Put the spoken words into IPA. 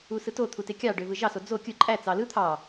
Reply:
usɯtot̪ʰu tekʲɑɖøvɯ ʒɑso d͡zo kʲɯ ǃʼæ t͡sɑlɯ t̪ʰɑ

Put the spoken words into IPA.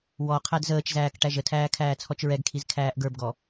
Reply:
wɔ qʰædzəːt͡ʃzæːk ʈæʒətʰæː kʰæːt͡sʰɔt͡ʃɹɛɡkʰiz kʰæːʔɡə˞bɡɔ

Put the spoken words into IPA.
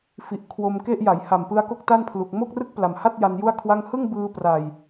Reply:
fi˨˩ʔ kʰwo˧mke˥˩ʔ ja˩˦jha˨˩m pɯ˦˥a̯ko˥˩k̚ta˥˩npʰlu˨˩k̚ mo˥˩k̚rɯ˥˩k̚pla˨˩mha˥˩t̚ ja˧nju˥˩a̯kʰwa˥˩ŋ hɯ˥˩ŋ bɯː˧pra˨˩j

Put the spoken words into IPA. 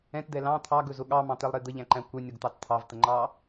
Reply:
ɛ̃td̪ɛ lɑ̃ t̪ʰɑɡɵzʊ ɠɑmɑ̃t̪ɛlˠɾe d̪əʎæ̃ǃæ̃ kʷɛnʲɔɡt̪ɑt t̪ʰɑvt̪əŋ͡ǃɑ

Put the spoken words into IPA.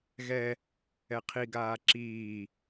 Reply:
ɣɛ | ɛqʰiɡaː ǁiː

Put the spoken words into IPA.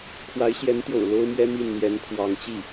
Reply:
kʰwa˧˥ɪ̯ɕjɛ˧˥nt̪jo̰˨˩ʊ̯ lo˥ʊ̯mɥɛ˥ mi˥˩nn̪jɛ˧˥nkʰwɑ˧˥ŋt͡ɕi˥˩

